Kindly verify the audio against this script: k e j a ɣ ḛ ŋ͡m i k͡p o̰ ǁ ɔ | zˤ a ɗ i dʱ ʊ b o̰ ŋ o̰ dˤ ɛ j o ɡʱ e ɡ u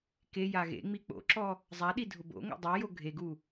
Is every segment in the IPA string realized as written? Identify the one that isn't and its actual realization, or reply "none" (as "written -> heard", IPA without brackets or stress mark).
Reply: none